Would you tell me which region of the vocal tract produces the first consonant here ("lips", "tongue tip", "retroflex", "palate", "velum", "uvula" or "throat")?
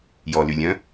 palate